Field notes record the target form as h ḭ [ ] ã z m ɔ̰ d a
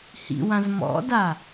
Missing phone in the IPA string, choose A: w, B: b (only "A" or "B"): A